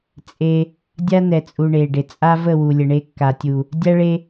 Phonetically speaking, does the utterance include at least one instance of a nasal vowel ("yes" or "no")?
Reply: no